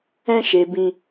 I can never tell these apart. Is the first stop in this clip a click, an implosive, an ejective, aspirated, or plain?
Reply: plain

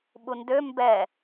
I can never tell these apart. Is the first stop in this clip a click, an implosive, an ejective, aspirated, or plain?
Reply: implosive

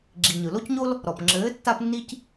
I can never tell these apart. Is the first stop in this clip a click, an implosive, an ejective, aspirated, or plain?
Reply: click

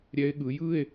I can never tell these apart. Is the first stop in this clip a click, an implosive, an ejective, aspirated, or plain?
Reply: implosive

